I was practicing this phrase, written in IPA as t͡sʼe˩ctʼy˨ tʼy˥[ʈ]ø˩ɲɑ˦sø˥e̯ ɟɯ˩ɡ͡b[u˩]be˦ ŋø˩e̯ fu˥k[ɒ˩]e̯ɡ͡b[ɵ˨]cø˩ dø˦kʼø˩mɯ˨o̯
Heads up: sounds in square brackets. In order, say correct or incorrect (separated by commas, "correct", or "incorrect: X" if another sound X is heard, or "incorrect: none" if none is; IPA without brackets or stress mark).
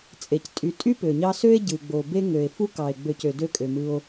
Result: incorrect: p, incorrect: o˩, incorrect: ɑ˩, incorrect: ø˨